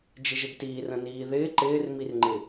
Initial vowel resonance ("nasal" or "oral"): oral